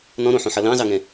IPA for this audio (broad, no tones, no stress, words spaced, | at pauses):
nɔ̃ɾõħõħʌ lɑ̃zɑŋɛ̃